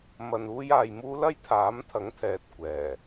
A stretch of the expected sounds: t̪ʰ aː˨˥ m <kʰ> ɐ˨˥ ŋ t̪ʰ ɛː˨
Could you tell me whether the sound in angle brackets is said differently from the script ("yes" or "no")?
yes